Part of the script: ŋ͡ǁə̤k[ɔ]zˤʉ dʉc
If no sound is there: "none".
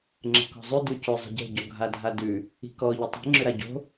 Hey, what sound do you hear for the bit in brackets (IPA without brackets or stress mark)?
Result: ɔ̤